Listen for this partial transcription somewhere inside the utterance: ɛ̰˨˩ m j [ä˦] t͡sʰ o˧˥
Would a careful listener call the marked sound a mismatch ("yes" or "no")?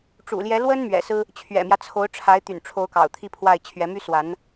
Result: no